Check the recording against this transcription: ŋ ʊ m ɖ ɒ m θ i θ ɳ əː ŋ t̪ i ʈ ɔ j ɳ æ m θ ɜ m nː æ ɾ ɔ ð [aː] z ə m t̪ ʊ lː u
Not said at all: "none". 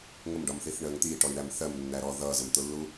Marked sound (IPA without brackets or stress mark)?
ʌː